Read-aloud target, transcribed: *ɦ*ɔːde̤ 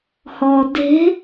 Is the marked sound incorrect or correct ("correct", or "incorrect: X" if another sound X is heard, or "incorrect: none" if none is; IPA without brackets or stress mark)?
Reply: incorrect: h